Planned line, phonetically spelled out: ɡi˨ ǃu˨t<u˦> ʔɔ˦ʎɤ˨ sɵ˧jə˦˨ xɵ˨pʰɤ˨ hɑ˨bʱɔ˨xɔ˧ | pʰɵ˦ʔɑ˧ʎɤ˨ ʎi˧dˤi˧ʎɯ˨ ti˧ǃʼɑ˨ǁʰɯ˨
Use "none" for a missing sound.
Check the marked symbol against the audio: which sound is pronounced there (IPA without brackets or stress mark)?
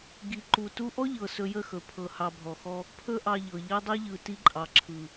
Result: u˦